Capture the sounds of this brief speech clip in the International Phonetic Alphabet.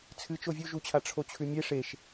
t͡sʰ ɨ t͡ʃ o vʲ u ʒ u t͡ɕʰ a ʈ͡ʂʰ o t͡ɕʰ ʉ mʲ e ʂ e ʃ

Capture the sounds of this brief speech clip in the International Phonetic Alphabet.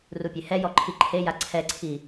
r u pʲ e h ɛ j ɔ ǃʰ i ǃʰ e j a ǀʰ ɛ ǀʰ i

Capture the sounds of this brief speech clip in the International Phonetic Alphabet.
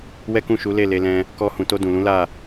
w ɛ˦ k ũ˦˨ ʃ u˨˦ l e˦˨ l e˧ l ɛ̃˧ | k ɔ˧ h ũ˨ t o˧ d ũ˨ l ũ˨˦ l a˦˨

